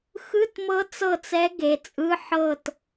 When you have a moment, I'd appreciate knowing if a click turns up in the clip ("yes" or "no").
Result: no